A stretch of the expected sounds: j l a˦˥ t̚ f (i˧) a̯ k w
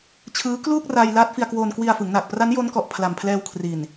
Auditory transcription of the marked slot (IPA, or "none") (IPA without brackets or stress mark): i˧